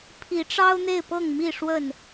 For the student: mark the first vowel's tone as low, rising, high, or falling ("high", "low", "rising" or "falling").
rising